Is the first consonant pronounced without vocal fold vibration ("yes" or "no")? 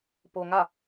yes